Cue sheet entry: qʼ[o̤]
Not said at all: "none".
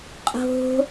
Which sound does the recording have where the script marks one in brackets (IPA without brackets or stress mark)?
o̤